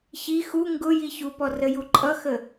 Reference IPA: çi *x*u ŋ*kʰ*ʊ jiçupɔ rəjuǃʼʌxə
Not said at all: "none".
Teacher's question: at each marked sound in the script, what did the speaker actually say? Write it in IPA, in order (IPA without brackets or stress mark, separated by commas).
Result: x, ɡ